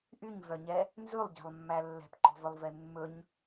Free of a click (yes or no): no